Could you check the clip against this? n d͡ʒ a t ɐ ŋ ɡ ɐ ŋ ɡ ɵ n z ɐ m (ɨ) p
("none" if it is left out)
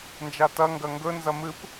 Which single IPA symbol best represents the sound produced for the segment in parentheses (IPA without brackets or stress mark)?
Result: ɨ